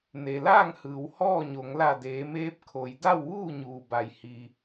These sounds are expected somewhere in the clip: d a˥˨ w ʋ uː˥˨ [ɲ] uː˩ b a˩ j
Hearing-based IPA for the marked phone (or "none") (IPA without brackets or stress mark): ɲ